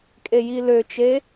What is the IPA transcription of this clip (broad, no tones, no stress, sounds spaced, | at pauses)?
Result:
kʼ e j i l ø t͡ʃ e